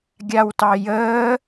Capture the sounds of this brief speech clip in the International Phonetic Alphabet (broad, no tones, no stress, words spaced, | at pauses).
ɡʲawtɑjəː